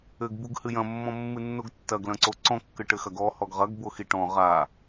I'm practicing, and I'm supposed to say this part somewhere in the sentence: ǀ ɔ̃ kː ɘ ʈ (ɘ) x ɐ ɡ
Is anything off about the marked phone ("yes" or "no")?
no